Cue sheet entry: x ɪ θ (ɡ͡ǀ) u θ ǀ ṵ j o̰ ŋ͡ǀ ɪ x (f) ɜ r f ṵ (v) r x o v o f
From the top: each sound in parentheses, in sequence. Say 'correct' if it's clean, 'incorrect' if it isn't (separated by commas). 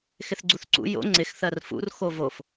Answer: correct, incorrect, incorrect